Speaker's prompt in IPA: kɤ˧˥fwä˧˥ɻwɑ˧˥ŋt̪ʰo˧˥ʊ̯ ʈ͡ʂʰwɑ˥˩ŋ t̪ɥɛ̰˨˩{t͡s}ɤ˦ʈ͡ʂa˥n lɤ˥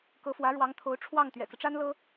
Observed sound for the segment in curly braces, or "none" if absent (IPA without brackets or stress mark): t͡s